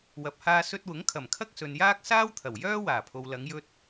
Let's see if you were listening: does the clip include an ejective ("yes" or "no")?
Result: no